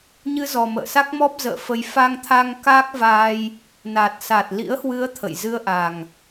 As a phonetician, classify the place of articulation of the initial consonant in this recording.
palatal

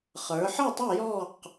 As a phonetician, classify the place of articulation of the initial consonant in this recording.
uvular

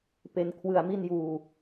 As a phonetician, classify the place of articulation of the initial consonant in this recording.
labial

